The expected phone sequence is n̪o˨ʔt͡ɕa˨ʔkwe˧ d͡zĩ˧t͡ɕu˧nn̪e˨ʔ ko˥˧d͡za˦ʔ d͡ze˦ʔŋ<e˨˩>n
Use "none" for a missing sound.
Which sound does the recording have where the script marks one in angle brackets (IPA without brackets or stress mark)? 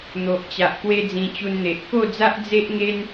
e˦